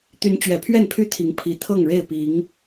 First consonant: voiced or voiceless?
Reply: voiceless